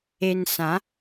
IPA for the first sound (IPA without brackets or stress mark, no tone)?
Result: e